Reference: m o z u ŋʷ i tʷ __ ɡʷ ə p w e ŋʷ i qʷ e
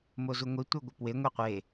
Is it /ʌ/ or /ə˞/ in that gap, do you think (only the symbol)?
ə˞